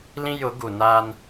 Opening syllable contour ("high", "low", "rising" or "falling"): high